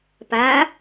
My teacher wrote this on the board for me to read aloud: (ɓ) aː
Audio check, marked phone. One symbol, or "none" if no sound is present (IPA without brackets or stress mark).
p